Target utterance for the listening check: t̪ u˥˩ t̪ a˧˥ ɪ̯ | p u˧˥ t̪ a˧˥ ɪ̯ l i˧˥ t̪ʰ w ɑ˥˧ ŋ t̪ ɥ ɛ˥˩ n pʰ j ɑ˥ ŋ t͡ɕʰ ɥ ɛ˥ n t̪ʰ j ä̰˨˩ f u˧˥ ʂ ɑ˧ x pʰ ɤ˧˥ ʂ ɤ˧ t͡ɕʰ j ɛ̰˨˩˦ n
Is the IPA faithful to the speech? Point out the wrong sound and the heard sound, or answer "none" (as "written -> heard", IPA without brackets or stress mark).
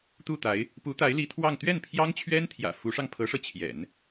x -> ŋ